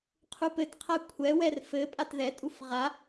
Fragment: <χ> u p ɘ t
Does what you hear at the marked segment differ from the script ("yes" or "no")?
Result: yes